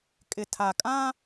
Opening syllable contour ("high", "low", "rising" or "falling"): low